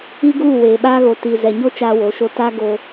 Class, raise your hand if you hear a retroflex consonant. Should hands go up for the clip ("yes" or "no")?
no